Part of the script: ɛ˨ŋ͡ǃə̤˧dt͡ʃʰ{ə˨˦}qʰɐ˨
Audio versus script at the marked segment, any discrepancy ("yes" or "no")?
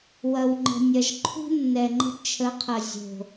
no